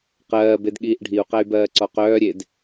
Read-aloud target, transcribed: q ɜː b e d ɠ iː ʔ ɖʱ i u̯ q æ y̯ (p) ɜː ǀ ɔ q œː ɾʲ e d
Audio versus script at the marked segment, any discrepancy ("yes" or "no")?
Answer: yes